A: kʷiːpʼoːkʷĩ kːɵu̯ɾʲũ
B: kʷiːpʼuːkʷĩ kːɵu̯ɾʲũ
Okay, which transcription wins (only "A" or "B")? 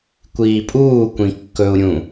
B